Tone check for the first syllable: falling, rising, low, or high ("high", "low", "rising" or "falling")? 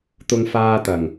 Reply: high